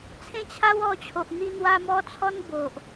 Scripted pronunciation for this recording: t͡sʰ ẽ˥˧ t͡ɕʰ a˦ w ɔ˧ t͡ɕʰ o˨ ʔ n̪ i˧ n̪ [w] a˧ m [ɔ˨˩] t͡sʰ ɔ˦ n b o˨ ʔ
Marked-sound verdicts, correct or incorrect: correct, incorrect

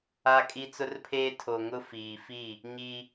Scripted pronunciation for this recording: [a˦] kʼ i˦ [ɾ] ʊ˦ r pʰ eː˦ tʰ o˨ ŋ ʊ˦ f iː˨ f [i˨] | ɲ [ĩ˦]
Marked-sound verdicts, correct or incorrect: correct, incorrect, incorrect, incorrect

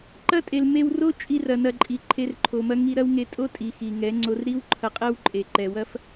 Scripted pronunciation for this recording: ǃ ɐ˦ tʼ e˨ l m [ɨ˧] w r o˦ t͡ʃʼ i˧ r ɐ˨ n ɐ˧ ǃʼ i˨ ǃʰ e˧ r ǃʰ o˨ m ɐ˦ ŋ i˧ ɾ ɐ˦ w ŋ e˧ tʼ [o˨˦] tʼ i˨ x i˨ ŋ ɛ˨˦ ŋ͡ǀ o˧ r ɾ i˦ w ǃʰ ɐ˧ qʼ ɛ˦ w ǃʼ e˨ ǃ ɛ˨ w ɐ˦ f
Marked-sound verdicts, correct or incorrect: incorrect, incorrect

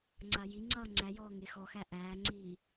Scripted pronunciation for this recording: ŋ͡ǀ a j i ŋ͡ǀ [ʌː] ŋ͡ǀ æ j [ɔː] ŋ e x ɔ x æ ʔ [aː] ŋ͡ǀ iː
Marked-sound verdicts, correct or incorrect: correct, correct, incorrect

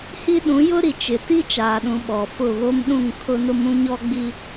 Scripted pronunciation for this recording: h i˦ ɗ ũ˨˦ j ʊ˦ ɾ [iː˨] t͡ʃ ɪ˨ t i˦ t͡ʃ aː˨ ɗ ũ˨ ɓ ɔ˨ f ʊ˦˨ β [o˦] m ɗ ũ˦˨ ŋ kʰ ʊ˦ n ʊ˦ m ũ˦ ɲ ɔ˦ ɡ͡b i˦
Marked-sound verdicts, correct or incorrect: incorrect, correct

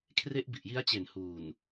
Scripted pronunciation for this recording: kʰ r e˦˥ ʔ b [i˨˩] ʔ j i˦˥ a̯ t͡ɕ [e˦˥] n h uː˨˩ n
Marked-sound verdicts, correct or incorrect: correct, incorrect

